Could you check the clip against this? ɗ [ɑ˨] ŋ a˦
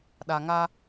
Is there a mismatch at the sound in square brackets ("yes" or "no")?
yes